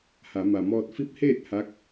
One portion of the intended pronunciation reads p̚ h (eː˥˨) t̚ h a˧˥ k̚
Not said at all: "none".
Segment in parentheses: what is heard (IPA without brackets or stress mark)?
eː˥˨